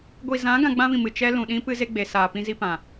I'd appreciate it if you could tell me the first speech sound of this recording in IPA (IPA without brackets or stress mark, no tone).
ɡʷ